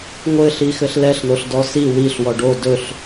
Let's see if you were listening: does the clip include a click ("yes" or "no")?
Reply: no